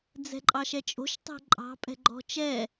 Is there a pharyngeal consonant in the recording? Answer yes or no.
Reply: no